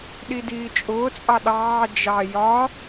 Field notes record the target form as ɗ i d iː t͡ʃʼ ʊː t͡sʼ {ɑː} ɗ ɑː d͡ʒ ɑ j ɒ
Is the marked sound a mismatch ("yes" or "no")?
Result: yes